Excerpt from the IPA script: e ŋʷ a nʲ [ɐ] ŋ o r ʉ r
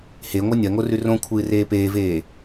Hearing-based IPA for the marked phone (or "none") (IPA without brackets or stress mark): ɐ